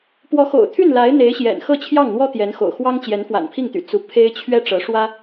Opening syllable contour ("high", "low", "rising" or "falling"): rising